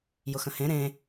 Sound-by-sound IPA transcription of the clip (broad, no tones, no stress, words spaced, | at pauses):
jʊxə̃hẽ ɾẽ